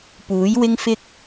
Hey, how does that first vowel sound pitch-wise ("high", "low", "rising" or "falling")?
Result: rising